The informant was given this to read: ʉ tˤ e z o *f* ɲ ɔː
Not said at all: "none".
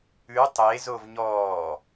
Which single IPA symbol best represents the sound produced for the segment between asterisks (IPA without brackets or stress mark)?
v